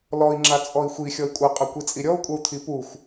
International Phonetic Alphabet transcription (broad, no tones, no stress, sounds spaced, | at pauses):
l ɔ i̯ ŋ͡ǁ a t͡sʼ ɔ i̯ xʷ i xʲ ɔ i̯ kʷʼ ʌ qʼ ʌ kʷ i t͡sʼ i ɾʲ ɔ u̯ kʷʼ ʌ u̯ t̪ʰ i p u xʷ